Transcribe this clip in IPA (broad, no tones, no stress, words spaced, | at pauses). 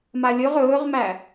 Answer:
malʲɵʁ ɵːʁmæ